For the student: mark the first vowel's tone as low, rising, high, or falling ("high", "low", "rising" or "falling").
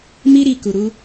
high